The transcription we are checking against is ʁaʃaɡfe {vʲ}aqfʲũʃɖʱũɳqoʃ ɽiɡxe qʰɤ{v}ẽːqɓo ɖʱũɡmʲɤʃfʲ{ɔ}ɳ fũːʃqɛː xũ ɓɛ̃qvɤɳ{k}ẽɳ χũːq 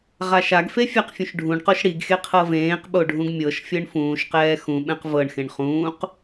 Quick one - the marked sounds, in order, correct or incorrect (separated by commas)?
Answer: incorrect, correct, incorrect, incorrect